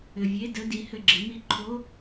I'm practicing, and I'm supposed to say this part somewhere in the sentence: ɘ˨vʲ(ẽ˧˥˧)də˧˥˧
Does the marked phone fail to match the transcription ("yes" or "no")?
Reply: yes